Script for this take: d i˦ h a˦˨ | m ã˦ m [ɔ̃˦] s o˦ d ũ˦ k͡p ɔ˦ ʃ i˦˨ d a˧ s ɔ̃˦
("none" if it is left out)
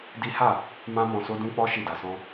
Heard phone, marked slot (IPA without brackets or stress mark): ɔ̃˧